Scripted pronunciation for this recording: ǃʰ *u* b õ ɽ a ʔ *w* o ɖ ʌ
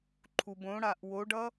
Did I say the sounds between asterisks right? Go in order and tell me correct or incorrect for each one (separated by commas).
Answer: correct, correct